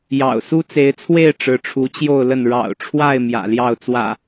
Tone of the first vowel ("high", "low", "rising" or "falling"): low